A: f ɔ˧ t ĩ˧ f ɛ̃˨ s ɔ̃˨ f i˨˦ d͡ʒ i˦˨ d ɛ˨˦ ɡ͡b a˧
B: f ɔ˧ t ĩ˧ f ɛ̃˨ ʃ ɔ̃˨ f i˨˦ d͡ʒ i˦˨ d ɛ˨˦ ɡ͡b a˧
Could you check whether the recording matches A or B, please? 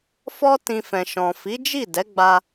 B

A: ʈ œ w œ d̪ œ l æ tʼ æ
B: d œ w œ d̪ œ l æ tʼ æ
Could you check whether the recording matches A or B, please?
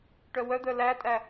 A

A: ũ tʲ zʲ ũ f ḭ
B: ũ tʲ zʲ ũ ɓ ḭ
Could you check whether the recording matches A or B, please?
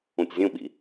B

